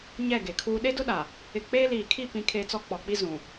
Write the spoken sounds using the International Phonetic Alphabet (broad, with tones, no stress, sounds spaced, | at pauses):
ɲ ɛ˦˨ ɡ e˨ kʰ uː˦ ɗ e˦ d ʊ˦ ɗ a˨ | ɪ˨ k͡p eː˦ l iː˨ kʰ i˦˨ p ĩ˦ kʰ e˦ t͡s ɔ˦ k͡p ɔ˨ k͡p i˦ z ũ˨